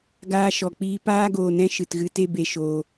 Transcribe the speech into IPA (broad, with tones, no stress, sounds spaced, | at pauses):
ɡ aː˧ ʃ ɔ˨ k͡p iː˧ p aː˦ ɡ oː˨ n ɛ̃˦ ʃ ɨ˨ t ɣ ɨ˧ t e˧ b e˨ ʃ oː˨